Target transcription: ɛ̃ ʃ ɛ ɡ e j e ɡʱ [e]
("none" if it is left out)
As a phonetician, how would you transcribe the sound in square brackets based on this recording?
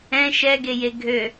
ø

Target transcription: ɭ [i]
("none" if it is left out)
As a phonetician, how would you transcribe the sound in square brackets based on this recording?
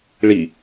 i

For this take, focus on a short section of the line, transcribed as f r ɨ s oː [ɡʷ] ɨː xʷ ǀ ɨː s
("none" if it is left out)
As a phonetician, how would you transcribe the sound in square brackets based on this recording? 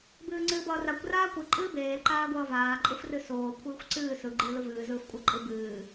kʷʰ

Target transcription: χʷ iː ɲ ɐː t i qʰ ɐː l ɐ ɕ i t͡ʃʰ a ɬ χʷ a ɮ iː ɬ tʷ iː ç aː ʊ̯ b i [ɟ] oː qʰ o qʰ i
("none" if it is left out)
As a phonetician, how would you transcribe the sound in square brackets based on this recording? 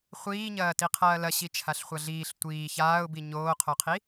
ɲ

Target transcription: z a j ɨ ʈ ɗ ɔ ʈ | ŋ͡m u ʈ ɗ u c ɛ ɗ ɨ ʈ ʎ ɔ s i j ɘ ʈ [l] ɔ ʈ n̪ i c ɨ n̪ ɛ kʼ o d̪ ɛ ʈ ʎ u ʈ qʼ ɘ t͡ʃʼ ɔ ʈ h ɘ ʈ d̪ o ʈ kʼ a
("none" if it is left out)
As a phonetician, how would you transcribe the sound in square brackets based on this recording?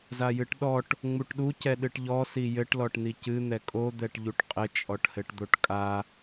l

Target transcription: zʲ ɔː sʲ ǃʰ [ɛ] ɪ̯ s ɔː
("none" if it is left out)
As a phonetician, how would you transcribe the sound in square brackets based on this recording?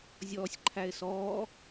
æ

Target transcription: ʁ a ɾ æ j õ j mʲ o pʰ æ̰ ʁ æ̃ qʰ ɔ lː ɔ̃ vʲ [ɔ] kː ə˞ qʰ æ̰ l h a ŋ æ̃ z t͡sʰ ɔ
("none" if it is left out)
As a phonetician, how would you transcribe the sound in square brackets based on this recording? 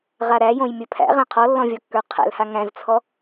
ɔ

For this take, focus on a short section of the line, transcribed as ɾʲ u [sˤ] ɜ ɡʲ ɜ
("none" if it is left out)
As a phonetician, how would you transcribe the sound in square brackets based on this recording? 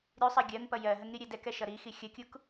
sˤ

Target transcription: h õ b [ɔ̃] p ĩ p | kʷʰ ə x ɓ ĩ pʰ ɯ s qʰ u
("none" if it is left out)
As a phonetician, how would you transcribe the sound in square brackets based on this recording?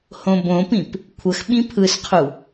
õ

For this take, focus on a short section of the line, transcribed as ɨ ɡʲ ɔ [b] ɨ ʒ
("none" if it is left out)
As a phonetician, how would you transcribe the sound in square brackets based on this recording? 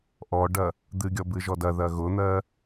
b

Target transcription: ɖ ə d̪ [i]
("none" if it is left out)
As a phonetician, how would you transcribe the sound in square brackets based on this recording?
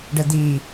i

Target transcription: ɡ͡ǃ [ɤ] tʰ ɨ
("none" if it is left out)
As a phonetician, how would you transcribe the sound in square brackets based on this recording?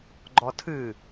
ɔ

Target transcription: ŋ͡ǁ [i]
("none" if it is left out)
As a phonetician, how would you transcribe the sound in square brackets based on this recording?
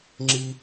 i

